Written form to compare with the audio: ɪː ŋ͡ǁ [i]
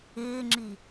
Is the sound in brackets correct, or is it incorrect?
correct